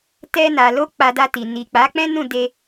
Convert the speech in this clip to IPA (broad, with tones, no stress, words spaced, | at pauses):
tɛ˧na˨lo˧ k͡pa˧ da˧ti˨ ni˨ k͡pa˨˦k͡pɛ̃˦nũ˦˨ de˧